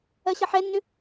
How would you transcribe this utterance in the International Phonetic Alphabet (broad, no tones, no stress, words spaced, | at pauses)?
ɜɕʌħɛnːʏ